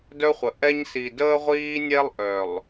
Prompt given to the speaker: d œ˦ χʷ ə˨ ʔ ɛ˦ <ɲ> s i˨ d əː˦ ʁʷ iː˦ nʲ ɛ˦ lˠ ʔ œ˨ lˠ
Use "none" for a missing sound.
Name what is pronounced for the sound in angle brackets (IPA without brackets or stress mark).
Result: ɲ